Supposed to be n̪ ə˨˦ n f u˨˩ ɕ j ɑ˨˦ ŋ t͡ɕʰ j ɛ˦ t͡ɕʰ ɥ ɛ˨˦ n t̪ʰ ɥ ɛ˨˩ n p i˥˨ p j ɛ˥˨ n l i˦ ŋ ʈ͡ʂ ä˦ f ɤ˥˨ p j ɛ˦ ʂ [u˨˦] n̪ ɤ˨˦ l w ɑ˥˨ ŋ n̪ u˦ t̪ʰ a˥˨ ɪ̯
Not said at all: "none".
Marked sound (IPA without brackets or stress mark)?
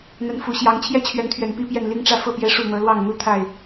u˥˨